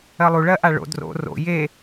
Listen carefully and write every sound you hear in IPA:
ɜlˠu ɭɜʔaɭo̰ dro̰ ro̰ je

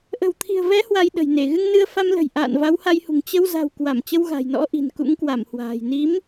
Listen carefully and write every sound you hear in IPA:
ʔə̤˨˩wt̪ʰi̤˨˩ə̯vɛ˨˦ hwa˧jɗə̤˨˩jne˧˩ ɣɨ˧ŋnɨ˧ə̯ fa˧mlə̤˨˩j ʔa̰ː˧˨nva˨˦wha˧jhṳ˨˩ŋ t͡ɕə˧wza̤˨˩w kwa˧˩mt͡ɕə˧wɣa̤˨˩j nɔ̰˧˥ʔi̤˨˩nkṵ˧˥ŋ kwa˧˩mhwa̤ː˨˩j ni˨˦m

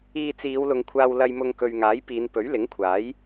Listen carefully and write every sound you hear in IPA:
iː˧t͡siː˨˧wlʊ˨˧ŋkʷʰaː˧w lɐ˧jmʊ˧ŋ kɵ˨ɥŋaː˨˥j piː˨˧npɵ˨˥ɥlɪ˨˥ŋkʷʰaː˨˥j

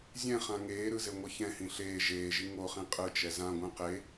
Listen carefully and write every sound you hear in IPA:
zʲɛ̃χã ŋeːɾɯzeŋʷʌ çɛ̃hĩ ɬeː ʒeːʒi ŋoχĩ qʼɯt͡ʃɛ zãɡʷɛ̃ qe

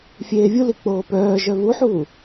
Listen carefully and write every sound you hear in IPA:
fʲeːvʲuli k͡poːpœːʒœ vuħuː

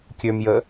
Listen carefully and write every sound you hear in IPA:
kʲømjə

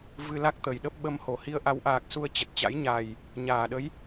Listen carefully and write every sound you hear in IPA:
vɨ˧la˦˥k̚t̪ə˨˩jɗə˦˥p̚ ɓə˧mho˧˩hi˧ə̯ ʔa˨˦wʔaː˨˩k̚su˧ə̯ t͡ɕə˨˩t̚t͡ɕa̰˧˥j ɲa˨˩j | ɲaː˨˩ɗə˨˦j

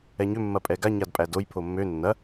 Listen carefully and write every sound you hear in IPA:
ɛɲʏ mːɐpʼɛɡa ɲadpʼædoj pʰomːø nːɐ

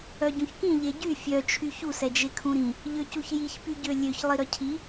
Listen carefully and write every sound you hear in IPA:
œɟũçkĩ ʎeɟy fʲœ t͡ʃʰyçus ɛd͡ʒekʰũɾĩ | ʎøcuçjiç pyɟølʲøç lˠiɾœcʰi

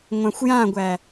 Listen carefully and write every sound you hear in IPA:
ŋʷãxʷjãɡʷæ

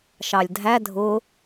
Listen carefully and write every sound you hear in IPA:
ʃɑlʲdʱæ dʱʊ

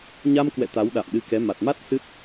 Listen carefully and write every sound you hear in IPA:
ɲa˧mkwɛ̰˧˨ t̪a˨˦wɗa̰˧˨mɗɨ˧kɛ˨˦ ma˨˩t̚ma˦˥t̚ sɨ˦˥t̚

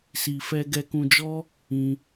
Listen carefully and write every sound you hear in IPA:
si˧fɛ˦ ɡɛ˧kũ˧d͡ʒɔ˦ | ĩ˧

